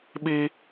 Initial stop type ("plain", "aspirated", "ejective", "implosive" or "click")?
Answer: implosive